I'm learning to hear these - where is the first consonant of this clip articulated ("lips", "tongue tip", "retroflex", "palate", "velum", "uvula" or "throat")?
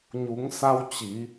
palate